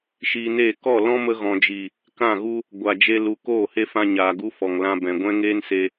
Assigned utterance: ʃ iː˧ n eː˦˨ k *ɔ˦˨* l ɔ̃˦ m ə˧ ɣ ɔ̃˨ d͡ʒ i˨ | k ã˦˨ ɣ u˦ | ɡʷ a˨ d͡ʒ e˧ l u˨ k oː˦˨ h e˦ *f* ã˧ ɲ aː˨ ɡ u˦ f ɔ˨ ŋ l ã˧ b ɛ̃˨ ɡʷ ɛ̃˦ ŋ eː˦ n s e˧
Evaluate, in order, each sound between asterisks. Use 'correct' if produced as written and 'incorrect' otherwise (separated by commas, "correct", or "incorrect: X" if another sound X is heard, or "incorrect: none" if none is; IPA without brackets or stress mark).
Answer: correct, correct